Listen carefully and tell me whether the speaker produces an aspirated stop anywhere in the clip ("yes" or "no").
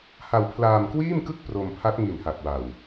yes